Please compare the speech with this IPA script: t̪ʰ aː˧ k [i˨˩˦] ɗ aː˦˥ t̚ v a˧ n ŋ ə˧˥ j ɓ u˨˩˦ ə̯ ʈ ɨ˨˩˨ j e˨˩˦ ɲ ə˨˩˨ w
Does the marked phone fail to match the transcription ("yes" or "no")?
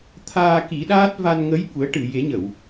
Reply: no